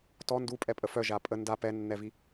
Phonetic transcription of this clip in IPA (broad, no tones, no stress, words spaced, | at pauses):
tɔ ndupʼɛpʼə fœʒa pʼə nda pɛnːɛvi